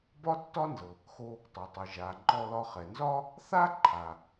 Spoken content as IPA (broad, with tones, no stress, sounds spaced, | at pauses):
b ɒ˥ tː ɒ˥ n z ɤ˩ | x o˧ | tˤ o˩ tˤ ɯ˩ ʒ a˩ ŋ͡ǃ ɔ˧ l ɒ˧ χ ɛ˩ n z ɒ˥ | θ a˥ ǃʰ a˩